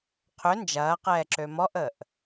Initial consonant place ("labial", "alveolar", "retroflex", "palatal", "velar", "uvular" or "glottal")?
uvular